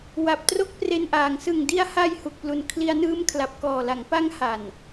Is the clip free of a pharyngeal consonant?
yes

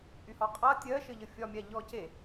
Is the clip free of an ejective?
no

